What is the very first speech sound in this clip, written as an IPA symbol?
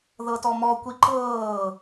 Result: ð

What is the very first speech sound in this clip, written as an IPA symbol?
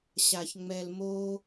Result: ɕ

